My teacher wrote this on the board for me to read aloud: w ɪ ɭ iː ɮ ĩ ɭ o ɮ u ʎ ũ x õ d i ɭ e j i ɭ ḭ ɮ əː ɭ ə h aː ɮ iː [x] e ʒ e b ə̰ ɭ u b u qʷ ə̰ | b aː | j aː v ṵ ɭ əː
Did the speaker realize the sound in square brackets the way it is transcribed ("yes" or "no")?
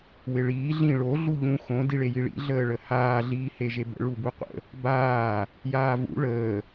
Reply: no